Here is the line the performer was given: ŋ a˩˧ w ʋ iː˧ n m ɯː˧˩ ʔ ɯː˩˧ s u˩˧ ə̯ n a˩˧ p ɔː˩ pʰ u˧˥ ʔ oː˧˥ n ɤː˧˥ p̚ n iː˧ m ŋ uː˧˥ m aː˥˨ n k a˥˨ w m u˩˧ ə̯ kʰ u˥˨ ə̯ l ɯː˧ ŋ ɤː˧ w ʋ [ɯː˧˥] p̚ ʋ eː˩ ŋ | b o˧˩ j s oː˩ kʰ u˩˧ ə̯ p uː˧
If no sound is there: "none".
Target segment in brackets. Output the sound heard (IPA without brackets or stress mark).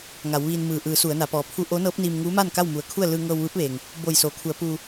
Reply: ɯː˧˥